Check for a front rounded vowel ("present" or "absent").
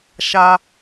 absent